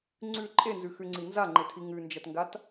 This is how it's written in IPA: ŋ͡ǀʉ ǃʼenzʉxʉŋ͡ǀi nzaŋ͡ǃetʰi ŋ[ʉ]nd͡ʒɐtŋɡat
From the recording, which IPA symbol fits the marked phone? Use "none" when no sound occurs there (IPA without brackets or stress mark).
ʉ